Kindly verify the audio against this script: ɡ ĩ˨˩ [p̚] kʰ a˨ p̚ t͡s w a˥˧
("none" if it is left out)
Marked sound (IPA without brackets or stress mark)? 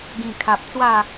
none